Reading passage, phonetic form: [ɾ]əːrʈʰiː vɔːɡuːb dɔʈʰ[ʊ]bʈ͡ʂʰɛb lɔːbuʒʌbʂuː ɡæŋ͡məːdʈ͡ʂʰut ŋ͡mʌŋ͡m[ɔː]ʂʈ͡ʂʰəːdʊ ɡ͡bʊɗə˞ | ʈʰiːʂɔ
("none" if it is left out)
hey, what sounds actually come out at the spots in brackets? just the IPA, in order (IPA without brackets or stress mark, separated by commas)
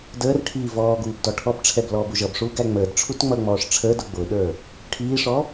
d, ɔ, ɔː